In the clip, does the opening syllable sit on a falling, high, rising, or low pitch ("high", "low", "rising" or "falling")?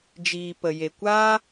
low